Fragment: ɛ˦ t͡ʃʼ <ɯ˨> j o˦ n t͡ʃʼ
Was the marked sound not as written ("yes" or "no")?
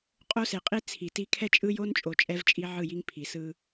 yes